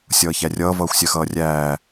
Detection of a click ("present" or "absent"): absent